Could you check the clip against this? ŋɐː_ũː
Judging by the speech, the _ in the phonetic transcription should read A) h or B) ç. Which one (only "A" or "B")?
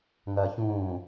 B